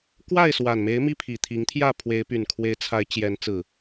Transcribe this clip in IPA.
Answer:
k w a˥˨ ɪ̯ s w a˨˩ n m e˨˦ ɪ̯ m i˦ pʰ i˨˩ t̪ʰ i˨˦ ŋ t̪ʰ j ä˥˨ pʰ w e˨˦ ɪ̯ p y˨˩ n kʰ w e˨˦ ɪ̯ t͡sʰ a˨˦ ɪ̯ t͡ɕ j ɛ˨˦ n t͡s ɹ̩˨˩

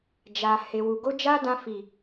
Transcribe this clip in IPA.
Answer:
d͡ʒ a˨ h e˨ w u˨ ɡ o˧ d͡ʒ a˦ d ã˧ f i˨

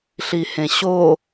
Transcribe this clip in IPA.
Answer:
ɬ i h ẽ ɕ o

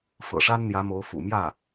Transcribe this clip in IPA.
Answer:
f ɤ̰˨˩ ʂ a˥ n n̪ j ä˧˥ m o˧˥ ʊ̯ f ṵ˨˩ m j ä˥˩

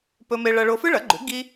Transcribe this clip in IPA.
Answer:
p ɵ˥ m e˥ ɭ ɐ˥ ɭ o˥ f ɨ˥ ɭ ɐ˩˥ ɡ͡ǃ ʉ˩˥ ɡ i˥

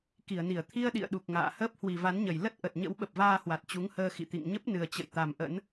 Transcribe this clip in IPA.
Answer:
k i˧˩ ə̯ n i˧˩ ə̯ t̪ʰ i˧ ə̯ ɗ ḭ˧˨ ə̯ ɗ u˨˩ k̚ ŋ a̰ː˧˨ h əː˦˥ p̚ h w i˨˩ v a˨˦ n ɲ ə˨˩ j l ə˦˥ t̚ ʔ ə˨˩ t̚ ɲ ə̰˧˥ w ɓ ə˨˩ p̚ v aː˧ h w a˨˩ t̚ t͡ɕ u˨˦ ŋ h əː˧ x ḭ˧˨ t̪ ḭ˧˨ ŋ ɲ ə˦˥ p̚ n ɨ˨˩ ə̯ t͡ɕ ə̰˧˨ j t̪ a˨˩ m ʔ ə̰˧˥ n

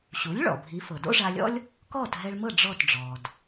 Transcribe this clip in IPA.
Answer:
ɕ u˩˥ lʲ ɭ ɔ̰˩ bʱ i˩˥ f ɤ˩ d o̰˥ ʐ a˧ lʲ ɔ̰˥ lʲ | k ɔː˥˩ t ɦ ɛ˧ ɭ m ɤ˥˩ ɖ͡ʐ ɔ˥˩ t ɖ͡ʐ ɔː˩ d

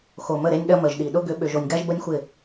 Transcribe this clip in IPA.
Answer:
x o˨ m ə˦˨ ɾ e˦ nʲ ɗ ɐ˦ m ə˨ ʒ ɗ i˨ ɗ ʊ˦ ɡ ʏ˨˦ ɓ ʏ˨ ʒ o˨ nʲ ɡ a˦ ʒ b ə˦ nʲ xʷ ɪ˦˨

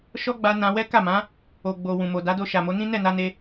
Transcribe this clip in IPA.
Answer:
ʃ ɔ˦ ɡ͡b a˧ n ã˧ w ɛ˦ k a˦˨ m ã˨˦ | o˨ ɡ͡b o˨ w ũ˨ m o˨ d a˨˦ d o˧ ʃ a˨ m o˨˦ n ĩ˦ n ɛ˦˨ n a˧ n e˧

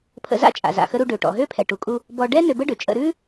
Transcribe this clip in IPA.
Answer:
pʰ ə̰˧ z a̰˥ t͡ʃʼ a̰˩ z a̰˩ x ə˧ ɾ u˧ ɖ ø˩ ʈ ɔ̰˩ ɦ ø˥ pʰ ɛ˩ ʈ u˩ kʼ u˧ | b ɔ˧ ɖ ɛ˥ n ø˧ b ə˥ ɖ ø˩ t͡ʃʼ ə̰˧ ɾ ʉ˥

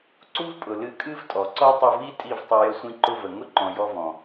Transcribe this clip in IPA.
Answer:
ǀ u˦ v pʼ ʊ˨ l ɨ˧ kʼ ɨ˦ v tʼ ɔ˨ ǀ ɔ˦ tˤ ʊ˧ v i˦ tʼ i˦˨ v tˤ ʊ˧ j ə˧ sʷ ĩ˧ ǃ ʊ˧ v ə˨ ŋ ʊ˦ ǃ ɔ̃˨ j ɔ˧ v ɔ̃˨

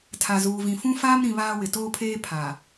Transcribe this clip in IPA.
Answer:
tʰ a˨ z uː˨ v ĩ˨ f ũ˦ f aː˦ m ɾ ĩ˨ β aː˦ w ɪ˨ t oː˦ pʰ eː˦ pʰ a˨

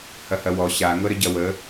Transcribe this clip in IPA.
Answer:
h ɐ h ɐ w ɔ ɕ a ŋ ɤ ɾ ə ɟ ɐ w ə

